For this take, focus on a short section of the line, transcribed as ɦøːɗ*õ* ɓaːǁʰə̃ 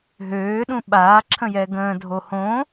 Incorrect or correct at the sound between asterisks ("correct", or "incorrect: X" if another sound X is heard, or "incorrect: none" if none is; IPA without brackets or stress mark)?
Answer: incorrect: ũ